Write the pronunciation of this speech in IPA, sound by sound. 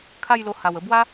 kʰ a˥˧ j l o˧ h a˨˩ w ə˧ b w a˦

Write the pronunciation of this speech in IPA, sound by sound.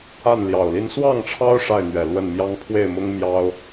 a˥˨ n l j ɑ˨˩ ʊ̯ l i˦ n s w ɑ˥˨ ŋ ʈ͡ʂʰ ɑ˦ ʊ̯ ʂ a˥˨ ɪ̯ n̪ ɥ ɛ˨˩ l w ə˥˨ n m j ɑ˦ ŋ pʰ w e˥˨ ɪ̯ m ʊ˦ ŋ m j ɑ˦ ʊ̯

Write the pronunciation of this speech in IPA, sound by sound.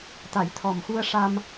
t̪ a˨˩˦ j t̪ʰ ɔ˨˩ m x u˧ ə̯ ʂ a˧ m

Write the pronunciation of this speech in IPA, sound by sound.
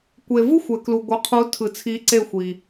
kʷ e˨ v ɯ˦ xʷ ɛ˨ k l u˨ ɡʷ ɯ˨ qʰ u˨˦ tʰ ɯ˨ t͡sʰ i˨˦ ǀ e˦˨ xʷ i˨

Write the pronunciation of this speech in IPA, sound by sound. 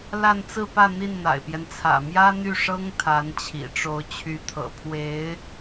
l a˥˧ n t͡s ɹ̩˥˧ p ä˥˧ n̪ i˥˩ n n̪ a̰˨˩ ɪ̯ p j ɛ˦ n t͡sʰ ä̰˨˩ m j ä˥ n̪ y˥˩ ʂ ɤ˥ ŋ t̪ʰ a˧˥ n t͡ɕʰ ḭ˨˩ ʈ͡ʂ o˧˥ ʊ̯ t͡ɕʰ y˧˥ t̪ʰ ɤ̰˨˩ pʰ w e˧˥ ɪ̯

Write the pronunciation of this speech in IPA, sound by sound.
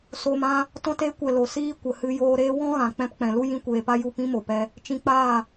s o˧ m ã˦ | t ɔ̃˧ t e˨˦ kʷ ɛ˨ l o˨ s iː˦ kʷ ə˨ h ɨ˧ j oː˧ ɾ eː˦ w ɔ̃˦ ɣ ã˨ k͡p ɛ̃˧ p k͡p ɛ̃˨ l u˦ j ĩ˦ kʷ eː˧ p a˦ j u˦˨ p ĩ˦ m o˨ p ɛ˧ | t͡ʃ ĩ˧ k͡p aː˦˨

